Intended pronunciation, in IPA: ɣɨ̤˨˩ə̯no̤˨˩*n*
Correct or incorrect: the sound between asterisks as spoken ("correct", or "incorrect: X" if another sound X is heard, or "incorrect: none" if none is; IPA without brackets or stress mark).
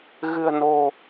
incorrect: none